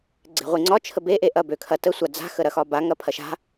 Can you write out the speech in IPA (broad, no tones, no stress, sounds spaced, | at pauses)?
ɡ͡ǀ e̤ ʁʷ i ŋ͡ǀ ɒ t͡ʃʰ ə b e ʔ e ʔ ɐ b ø kʰ ɐ t ə sʷ a d͡z a̤ x ə ɾ ɐ x ɒ b a ŋ ɐ pʰ ɐ ʃ a̤